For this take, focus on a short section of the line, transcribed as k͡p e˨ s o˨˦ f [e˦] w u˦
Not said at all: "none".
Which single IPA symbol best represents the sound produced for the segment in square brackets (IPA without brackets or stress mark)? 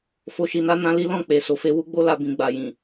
e˦